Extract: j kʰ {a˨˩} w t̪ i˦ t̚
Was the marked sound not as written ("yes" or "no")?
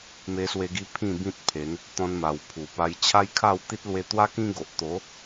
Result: yes